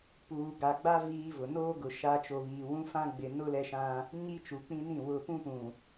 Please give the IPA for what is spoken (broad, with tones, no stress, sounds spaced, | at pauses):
p uː˨ ɡ a˨ ɡ͡b a˦ v iː˦ v ʊ˨ n oː˦ ɡ ʊ˨ ʃ a˦ t͡ʃ o˨ β iː˨ w ũ˦ f ã˦ ɡ͡b ɪ˨ n ʊ˦ l ɛ˦ ʃ ã˦ | ɲ i˦ t͡ʃ u˨ k͡p ĩ˦ n ĩ˦˨ w ʊ˨ p ũ˦ p ũ˨